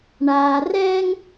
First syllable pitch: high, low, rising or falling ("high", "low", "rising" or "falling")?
low